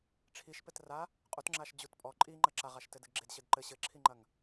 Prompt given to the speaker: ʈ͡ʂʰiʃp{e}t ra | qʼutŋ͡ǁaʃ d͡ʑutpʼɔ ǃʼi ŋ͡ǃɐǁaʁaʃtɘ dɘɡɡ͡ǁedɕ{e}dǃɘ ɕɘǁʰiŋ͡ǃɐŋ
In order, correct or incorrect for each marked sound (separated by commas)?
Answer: incorrect, incorrect